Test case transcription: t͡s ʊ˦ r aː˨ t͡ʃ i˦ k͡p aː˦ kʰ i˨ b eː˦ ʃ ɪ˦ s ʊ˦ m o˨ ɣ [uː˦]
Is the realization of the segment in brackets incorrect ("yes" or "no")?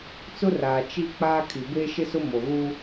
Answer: no